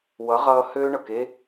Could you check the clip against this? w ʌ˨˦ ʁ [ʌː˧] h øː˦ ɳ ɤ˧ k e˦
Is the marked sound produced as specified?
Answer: yes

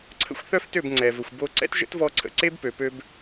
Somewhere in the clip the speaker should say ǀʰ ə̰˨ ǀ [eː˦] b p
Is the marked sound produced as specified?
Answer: no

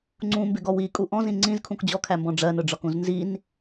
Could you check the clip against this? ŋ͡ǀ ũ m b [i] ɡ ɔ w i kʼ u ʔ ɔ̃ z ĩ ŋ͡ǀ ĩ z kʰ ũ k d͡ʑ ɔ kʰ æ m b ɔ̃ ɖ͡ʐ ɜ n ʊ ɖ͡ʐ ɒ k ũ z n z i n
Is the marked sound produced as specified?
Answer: no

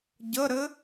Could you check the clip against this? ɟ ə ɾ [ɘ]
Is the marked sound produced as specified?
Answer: yes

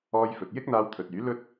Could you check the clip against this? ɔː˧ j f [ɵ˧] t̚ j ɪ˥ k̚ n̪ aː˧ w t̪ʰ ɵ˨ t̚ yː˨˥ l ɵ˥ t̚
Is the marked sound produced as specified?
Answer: no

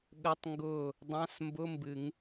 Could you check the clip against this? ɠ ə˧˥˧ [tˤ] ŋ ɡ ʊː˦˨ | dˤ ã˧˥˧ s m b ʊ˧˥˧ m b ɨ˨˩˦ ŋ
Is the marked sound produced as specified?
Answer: yes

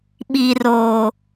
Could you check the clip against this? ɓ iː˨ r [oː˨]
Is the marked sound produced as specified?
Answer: yes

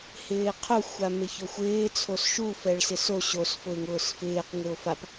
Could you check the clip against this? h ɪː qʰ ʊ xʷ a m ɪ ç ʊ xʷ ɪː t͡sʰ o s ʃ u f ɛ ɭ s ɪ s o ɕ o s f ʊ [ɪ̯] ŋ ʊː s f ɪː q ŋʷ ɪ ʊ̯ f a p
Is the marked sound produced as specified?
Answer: yes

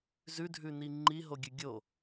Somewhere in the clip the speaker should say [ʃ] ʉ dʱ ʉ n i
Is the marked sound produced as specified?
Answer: no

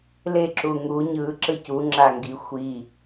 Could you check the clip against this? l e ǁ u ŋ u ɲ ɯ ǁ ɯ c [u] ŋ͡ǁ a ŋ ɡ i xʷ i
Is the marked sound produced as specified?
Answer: yes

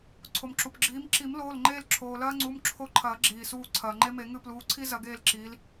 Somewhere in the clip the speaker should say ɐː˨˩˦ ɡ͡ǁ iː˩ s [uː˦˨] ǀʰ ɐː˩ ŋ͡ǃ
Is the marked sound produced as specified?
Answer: yes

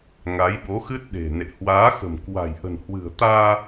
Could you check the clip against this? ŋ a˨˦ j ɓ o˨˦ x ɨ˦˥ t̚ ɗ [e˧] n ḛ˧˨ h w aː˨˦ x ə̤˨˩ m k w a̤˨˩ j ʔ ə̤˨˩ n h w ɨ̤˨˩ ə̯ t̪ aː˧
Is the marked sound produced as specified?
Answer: no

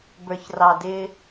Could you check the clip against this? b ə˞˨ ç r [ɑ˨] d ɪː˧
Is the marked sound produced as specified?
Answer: yes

